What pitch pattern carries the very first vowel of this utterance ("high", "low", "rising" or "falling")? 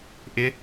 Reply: rising